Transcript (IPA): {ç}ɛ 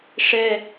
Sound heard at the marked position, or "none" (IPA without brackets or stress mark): ʂ